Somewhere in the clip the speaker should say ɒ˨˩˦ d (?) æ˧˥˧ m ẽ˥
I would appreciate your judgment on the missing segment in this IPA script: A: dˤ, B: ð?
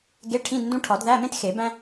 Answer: B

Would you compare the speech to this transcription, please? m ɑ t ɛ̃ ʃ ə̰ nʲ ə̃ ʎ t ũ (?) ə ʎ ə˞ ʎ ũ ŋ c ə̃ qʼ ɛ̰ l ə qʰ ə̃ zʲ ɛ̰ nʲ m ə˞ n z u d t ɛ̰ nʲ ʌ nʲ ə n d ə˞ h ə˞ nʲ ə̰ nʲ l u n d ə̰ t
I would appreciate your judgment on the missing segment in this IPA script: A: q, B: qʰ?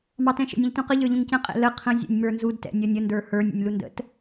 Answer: A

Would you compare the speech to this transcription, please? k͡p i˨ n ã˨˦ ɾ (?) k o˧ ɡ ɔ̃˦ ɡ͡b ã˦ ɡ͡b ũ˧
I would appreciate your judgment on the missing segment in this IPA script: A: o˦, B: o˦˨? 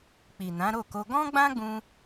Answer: B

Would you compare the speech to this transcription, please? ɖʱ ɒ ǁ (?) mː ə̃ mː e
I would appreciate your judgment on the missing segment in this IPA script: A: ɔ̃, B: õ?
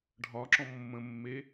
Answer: A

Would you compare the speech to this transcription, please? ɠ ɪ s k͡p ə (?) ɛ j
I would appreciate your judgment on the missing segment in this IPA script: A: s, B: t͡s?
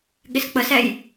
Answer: A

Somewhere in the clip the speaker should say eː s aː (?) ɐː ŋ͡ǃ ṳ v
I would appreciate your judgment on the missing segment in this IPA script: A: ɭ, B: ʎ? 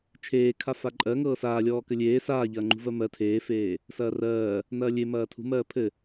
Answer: B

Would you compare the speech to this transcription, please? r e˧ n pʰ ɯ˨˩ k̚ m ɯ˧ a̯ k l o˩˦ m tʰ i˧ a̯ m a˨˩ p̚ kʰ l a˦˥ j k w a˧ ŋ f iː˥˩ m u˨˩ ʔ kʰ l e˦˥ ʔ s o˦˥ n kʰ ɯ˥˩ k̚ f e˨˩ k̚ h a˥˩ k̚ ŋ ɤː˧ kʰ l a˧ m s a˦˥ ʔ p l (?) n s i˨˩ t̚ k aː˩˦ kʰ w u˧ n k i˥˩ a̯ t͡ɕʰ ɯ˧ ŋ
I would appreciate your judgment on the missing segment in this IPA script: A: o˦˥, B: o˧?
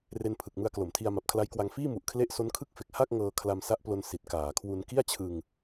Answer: B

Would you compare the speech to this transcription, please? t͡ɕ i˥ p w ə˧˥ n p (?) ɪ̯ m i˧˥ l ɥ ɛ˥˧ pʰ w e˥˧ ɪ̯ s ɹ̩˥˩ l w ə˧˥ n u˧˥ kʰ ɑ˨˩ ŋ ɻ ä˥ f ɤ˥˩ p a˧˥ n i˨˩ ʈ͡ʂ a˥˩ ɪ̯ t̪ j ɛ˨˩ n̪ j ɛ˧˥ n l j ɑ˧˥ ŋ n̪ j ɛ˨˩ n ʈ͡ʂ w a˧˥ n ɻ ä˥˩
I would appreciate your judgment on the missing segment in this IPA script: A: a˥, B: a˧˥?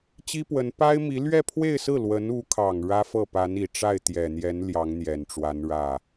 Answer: A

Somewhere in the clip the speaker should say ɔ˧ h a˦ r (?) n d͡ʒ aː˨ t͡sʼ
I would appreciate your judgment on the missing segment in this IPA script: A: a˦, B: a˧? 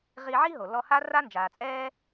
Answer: A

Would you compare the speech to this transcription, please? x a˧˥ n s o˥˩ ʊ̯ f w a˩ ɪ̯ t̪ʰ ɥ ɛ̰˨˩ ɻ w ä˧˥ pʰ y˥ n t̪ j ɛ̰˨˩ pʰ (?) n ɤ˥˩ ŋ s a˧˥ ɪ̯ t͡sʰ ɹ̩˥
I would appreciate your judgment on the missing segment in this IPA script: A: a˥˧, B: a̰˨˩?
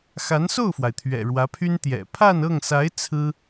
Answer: A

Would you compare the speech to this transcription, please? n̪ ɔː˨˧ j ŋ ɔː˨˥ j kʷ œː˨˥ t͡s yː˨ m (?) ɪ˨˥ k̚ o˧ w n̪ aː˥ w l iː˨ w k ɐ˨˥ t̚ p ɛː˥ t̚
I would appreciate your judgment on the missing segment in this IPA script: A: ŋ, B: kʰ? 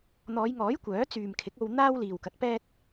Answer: B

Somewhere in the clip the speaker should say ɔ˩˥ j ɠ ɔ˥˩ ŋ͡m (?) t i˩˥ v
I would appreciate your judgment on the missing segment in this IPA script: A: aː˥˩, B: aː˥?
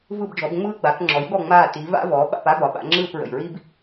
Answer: A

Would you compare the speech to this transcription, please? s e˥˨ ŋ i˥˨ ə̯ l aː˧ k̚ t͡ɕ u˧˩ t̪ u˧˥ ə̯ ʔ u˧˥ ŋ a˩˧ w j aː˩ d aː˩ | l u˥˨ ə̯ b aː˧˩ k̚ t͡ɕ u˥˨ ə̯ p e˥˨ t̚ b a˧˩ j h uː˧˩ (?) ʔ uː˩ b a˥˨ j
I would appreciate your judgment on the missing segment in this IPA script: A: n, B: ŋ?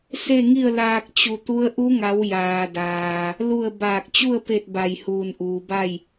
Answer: A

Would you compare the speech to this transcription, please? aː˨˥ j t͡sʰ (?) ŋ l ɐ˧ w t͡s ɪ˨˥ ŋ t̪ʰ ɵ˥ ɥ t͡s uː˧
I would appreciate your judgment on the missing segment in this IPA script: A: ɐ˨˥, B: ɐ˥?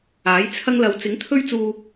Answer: B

